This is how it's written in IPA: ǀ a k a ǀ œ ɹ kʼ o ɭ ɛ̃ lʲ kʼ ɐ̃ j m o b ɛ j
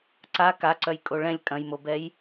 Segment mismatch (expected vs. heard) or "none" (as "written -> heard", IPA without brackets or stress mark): ɹ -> j